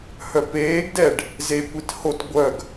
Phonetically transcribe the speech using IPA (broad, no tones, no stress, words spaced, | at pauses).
hœpeːɡdɛɖ | zekʷit hot ɡʷœɡ